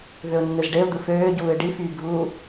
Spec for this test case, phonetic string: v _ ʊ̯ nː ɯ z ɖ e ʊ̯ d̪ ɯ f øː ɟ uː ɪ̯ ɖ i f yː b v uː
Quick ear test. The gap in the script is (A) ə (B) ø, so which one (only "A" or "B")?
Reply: B